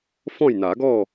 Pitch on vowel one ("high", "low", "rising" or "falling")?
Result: falling